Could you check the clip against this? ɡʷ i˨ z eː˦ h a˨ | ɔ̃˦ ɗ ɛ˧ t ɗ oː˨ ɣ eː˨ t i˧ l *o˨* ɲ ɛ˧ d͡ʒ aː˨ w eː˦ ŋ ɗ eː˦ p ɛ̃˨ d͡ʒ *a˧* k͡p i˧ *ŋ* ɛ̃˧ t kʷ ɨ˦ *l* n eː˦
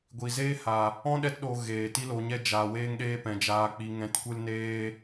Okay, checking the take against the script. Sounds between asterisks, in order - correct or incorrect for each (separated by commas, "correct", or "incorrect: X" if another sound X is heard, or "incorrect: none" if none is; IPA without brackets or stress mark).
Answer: correct, incorrect: aː˧, correct, correct